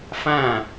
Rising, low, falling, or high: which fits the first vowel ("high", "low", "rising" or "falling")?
falling